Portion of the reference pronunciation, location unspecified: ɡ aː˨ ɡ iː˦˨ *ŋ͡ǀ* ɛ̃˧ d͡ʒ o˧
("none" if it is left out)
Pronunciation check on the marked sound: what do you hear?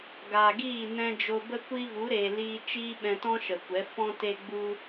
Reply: n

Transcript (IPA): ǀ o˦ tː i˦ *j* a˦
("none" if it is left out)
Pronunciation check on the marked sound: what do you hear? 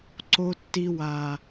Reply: w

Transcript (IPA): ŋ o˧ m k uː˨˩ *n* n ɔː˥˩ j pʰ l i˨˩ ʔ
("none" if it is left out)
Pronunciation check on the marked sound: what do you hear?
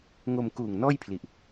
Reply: ŋ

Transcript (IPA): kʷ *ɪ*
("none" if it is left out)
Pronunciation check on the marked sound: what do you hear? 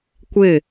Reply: ɪ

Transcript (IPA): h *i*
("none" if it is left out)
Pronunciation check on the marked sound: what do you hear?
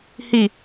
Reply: i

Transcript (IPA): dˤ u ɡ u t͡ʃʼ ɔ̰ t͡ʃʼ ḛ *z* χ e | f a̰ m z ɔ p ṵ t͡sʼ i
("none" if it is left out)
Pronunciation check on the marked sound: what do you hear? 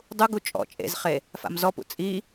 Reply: z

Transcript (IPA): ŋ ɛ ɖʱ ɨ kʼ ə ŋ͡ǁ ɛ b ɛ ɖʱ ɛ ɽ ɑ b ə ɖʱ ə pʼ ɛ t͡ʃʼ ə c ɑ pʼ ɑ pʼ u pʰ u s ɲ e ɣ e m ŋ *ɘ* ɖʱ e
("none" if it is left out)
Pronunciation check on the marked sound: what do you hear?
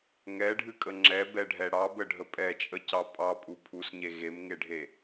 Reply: e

